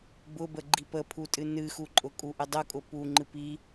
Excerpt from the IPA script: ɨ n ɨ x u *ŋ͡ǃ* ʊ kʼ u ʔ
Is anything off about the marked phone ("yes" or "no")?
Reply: yes